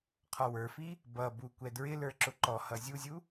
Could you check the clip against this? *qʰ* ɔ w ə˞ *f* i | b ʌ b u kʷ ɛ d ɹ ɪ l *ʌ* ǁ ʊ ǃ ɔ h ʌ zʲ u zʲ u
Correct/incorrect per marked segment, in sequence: correct, correct, incorrect

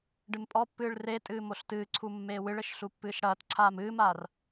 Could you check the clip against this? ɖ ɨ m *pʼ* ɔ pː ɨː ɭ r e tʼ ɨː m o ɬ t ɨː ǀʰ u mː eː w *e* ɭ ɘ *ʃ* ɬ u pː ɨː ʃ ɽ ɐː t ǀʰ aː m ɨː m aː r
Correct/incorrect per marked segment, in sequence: correct, incorrect, correct

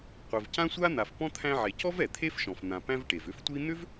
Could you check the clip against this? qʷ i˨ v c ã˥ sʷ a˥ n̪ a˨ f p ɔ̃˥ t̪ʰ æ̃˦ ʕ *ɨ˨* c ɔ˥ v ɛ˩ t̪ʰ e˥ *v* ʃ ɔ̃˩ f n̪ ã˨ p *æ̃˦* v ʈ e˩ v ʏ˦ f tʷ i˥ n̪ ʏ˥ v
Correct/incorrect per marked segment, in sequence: incorrect, incorrect, correct

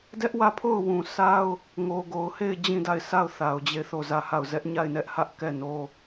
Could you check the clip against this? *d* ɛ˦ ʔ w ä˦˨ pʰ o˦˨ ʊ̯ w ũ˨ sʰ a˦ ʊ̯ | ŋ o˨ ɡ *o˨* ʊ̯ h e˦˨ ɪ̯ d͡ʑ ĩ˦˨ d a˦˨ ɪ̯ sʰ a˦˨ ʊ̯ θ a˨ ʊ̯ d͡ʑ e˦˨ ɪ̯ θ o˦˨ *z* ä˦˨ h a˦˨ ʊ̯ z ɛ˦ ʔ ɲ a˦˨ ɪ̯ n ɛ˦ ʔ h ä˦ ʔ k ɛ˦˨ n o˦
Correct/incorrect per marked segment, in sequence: correct, correct, correct

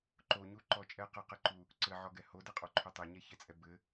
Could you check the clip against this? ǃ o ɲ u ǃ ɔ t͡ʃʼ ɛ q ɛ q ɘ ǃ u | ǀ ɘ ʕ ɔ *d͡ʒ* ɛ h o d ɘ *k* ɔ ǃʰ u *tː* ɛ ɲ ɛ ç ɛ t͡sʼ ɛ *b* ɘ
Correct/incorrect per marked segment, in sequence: incorrect, incorrect, incorrect, correct

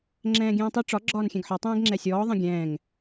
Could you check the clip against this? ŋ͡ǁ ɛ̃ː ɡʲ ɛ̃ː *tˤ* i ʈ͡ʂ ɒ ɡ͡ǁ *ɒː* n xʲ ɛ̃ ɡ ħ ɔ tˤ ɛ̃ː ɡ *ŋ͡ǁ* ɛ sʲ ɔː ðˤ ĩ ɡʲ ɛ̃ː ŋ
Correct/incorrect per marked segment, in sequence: correct, correct, correct

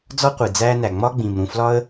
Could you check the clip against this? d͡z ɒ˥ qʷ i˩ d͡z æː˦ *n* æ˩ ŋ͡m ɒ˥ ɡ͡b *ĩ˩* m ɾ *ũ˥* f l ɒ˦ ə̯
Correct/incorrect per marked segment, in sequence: correct, correct, incorrect

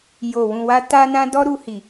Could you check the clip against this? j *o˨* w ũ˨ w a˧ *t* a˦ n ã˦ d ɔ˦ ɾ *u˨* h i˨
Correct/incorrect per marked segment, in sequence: correct, correct, incorrect

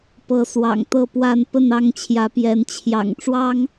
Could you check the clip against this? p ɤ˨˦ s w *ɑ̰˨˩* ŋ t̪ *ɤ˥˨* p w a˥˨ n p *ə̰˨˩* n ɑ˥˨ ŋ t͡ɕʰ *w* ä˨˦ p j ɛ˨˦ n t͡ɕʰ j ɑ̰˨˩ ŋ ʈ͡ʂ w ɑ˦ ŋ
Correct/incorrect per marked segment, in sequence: correct, correct, incorrect, incorrect

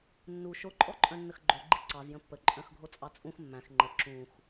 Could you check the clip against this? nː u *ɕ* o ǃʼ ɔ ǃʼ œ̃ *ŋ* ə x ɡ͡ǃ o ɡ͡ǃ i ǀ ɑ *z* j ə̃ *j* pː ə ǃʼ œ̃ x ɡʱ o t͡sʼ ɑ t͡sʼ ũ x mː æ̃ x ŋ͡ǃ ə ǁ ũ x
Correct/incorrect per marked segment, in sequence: incorrect, incorrect, correct, incorrect

